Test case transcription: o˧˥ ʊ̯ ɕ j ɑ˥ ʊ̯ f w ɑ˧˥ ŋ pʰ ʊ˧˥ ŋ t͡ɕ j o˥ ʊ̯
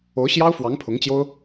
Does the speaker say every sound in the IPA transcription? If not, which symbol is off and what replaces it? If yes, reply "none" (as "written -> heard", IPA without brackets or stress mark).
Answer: none